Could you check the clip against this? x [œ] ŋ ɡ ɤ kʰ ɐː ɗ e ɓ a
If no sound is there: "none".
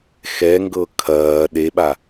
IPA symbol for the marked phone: ɛ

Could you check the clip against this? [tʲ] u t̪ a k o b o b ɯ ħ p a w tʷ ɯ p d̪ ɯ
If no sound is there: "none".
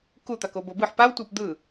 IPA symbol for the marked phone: k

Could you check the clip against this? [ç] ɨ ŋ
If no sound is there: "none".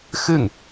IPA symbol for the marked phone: x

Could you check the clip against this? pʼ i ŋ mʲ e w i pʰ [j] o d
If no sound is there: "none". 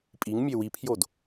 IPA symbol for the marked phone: j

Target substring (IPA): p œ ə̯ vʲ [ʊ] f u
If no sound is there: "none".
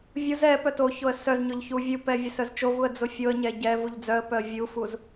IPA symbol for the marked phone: u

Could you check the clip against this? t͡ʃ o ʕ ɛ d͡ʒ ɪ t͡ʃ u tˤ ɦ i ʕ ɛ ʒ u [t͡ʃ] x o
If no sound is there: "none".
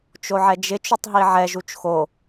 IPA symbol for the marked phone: t͡ʃ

